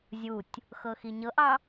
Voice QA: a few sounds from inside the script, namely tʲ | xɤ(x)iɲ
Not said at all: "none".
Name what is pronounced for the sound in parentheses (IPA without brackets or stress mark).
x